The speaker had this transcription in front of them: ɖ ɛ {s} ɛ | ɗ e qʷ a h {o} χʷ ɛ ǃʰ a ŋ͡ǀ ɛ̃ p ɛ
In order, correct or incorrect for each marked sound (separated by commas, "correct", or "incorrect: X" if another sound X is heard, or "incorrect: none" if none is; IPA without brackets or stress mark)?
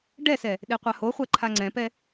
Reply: correct, correct